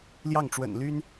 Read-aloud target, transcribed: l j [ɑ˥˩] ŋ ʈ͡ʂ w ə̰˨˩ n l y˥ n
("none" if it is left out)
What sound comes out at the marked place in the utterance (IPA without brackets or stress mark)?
ɑ˥˩